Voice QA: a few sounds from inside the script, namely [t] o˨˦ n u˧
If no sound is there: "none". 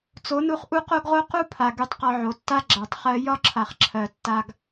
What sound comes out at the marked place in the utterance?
t͡s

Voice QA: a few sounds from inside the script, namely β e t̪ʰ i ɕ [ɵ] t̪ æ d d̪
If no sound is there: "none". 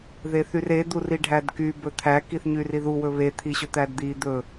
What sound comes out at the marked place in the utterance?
ɵ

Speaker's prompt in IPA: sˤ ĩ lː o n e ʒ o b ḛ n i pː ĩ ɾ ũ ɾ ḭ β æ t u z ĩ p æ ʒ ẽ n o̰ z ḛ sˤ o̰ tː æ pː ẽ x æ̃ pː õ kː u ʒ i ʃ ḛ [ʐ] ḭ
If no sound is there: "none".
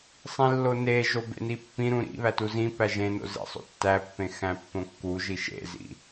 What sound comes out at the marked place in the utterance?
z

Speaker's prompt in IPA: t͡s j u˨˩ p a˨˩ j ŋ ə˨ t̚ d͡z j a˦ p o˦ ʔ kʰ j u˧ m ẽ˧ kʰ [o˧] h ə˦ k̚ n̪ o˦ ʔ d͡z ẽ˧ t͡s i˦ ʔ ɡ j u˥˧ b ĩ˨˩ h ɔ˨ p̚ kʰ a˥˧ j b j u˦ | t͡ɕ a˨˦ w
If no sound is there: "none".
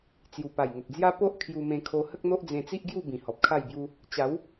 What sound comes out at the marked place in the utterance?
o˧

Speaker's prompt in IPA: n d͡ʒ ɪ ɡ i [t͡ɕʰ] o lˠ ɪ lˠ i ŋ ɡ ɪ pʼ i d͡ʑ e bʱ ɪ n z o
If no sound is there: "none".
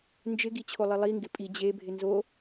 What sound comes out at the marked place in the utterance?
t͡ɕʰ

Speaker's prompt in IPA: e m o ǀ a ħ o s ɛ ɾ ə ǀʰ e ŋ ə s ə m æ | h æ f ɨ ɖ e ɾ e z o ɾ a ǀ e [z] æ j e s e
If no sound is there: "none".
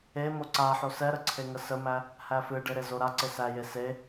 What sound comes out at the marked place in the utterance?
s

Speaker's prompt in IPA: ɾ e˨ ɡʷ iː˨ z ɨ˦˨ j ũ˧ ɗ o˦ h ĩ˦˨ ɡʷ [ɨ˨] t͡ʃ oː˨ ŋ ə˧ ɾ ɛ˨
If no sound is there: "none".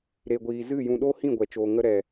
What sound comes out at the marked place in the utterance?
ɛ˨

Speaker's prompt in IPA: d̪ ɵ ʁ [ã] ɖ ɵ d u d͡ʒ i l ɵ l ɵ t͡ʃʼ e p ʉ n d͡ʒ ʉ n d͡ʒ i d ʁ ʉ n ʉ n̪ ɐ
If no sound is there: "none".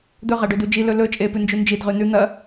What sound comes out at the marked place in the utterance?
a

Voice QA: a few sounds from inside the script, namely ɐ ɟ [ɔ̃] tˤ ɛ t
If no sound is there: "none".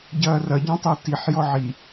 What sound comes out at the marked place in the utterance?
ɔ̃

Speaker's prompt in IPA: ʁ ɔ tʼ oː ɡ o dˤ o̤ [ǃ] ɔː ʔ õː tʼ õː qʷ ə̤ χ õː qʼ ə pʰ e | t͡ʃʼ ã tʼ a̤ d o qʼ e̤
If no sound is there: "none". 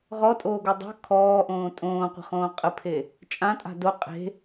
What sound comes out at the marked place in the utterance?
kʰ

